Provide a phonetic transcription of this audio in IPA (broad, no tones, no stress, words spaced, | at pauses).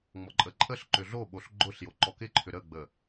ŋ͡mɔǃʼəǃʼəɬ ǃʏɮoɓoɬ ɡ͡ǃʊɬ joǃɔkɪǃʰʏ ɾəɡ͡bə